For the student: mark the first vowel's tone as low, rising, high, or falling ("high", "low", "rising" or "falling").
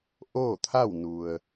falling